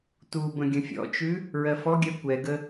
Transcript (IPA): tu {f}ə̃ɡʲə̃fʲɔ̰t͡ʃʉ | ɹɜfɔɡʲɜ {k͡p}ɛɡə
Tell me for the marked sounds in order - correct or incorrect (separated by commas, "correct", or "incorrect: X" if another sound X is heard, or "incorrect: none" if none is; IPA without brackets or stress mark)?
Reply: incorrect: b, incorrect: kʷ